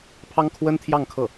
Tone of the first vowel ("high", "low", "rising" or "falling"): high